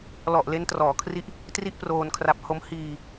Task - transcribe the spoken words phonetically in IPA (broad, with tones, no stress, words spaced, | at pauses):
lɔ˨˩ʔ le˧ntrɔː˩˦kʰri˦˥ʔ | tri˥˩ʔproː˧nkʰra˦˥p̚ ho˦˥m hiː˧